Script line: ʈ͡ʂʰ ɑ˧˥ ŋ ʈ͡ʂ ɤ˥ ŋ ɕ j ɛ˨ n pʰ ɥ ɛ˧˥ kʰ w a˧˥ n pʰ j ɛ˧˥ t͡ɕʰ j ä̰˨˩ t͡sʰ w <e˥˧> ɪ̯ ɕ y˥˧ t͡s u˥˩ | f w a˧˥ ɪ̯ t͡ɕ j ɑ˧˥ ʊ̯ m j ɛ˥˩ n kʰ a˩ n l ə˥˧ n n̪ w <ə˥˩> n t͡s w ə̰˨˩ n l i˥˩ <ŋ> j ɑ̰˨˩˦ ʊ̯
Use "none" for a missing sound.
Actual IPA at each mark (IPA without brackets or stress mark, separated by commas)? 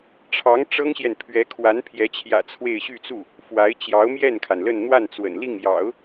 e˥˧, a˥˩, ŋ